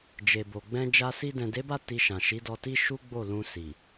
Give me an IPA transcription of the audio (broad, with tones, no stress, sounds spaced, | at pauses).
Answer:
d͡ʒ e˨ b o˨ ɡ͡b ɛ̃˧ d͡ʒ a˧ s i˧ d ɛ̃˨ d e˨˦ b a˦˨ t i˧ ʃ ã˨ ʃ i˨˦ d ɔ˧ t i˦ ʃ u˦ ɡ͡b o˦˨ l ũ˧ s i˨